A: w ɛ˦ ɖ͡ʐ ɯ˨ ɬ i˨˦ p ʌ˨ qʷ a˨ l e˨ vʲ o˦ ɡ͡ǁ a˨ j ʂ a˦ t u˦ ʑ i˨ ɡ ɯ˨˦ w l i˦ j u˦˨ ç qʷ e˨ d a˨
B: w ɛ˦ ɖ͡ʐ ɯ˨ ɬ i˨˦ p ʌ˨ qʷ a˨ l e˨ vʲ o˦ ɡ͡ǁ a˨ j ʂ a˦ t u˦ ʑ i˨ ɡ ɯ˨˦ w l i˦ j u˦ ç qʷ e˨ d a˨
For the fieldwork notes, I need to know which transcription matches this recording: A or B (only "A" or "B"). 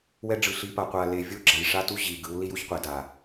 B